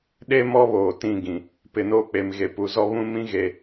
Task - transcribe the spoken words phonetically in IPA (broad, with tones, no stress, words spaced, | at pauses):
ɗe˦ mɔ˦βoː˨ tĩ˦˨ɡĩ˨ | pɪ˨noː˦k͡pe˨m ɣe˨pu˨ zɔ˦βũ˦mĩ˦ɣe˨